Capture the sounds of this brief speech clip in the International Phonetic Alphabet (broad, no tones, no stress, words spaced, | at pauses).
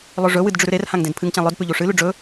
lˠɵʐɵwɨd ɖ͡ʐʉɾʉɾerhãŋ dẽdpʰɨŋt͡ɕã lˠɵdpʉ ʎuʂɨlʉ ɖ͡ʐɵ